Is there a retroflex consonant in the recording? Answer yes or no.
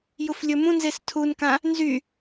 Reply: no